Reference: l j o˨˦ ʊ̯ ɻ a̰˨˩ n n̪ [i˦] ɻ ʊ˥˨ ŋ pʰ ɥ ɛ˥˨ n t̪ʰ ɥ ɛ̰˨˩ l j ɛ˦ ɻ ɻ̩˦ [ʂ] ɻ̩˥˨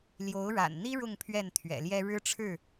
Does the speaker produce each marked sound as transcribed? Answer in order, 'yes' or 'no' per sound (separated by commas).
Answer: yes, no